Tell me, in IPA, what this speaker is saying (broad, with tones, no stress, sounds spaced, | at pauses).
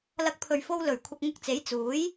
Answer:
l ɐ˨˥ k̚ pʰ ɵ˨ ɥ f o˧ w l ɵ˨˩ ɥ kʷʰ ɐ˧ k̚ ŋ ʊ˧ k̚ t͡s e˨˥ j t͡s uː˨˥ j